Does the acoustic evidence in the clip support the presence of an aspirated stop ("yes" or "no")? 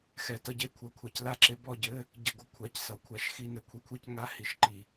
yes